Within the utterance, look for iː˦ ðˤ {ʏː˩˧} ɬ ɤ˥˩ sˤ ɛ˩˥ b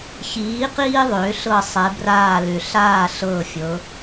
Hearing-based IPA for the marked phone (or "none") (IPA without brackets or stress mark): ʏː˩˧